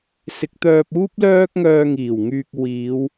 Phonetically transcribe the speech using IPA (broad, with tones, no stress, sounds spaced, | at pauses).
s ɪ˨˥ k̚ t̪ œː˧ p̚ uː˥ p̚ l œː˥ k̚ ŋ œː˧ ŋ iː˨˩ w ŋ yː˨ k̚ w iː˨˧ w